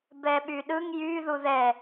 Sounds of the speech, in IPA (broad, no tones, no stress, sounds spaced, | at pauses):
b ɛ ɓ y ɗ ɯ ŋ j y ð u ð ɛ